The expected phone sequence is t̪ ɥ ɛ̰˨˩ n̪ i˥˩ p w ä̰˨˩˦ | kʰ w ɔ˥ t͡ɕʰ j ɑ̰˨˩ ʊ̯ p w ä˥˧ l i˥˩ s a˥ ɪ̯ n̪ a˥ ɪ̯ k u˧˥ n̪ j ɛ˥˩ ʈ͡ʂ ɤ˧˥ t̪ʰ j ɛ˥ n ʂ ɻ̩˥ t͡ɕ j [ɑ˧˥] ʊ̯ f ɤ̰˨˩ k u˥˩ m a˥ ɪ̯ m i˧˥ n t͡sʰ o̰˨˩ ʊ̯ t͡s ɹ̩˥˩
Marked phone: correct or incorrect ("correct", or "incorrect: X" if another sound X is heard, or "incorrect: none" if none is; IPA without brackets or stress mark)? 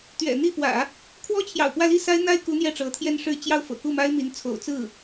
incorrect: ɑ˥˩